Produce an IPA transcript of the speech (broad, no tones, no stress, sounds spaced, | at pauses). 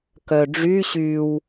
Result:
k œ ɖ͡ʐ y ɕ y w